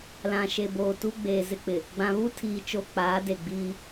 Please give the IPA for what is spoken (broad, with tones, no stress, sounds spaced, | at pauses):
l ã˨ ʃ e˨ b oː˨ t u˦ ɡ͡b eː˨ z ɪ˦ k͡p ɪ˨ | ɡ͡b ã˨ β u˦ tʰ iː˨ t͡ʃ o˨ k͡p aː˨˦ d e˨ ɡ͡b iː˦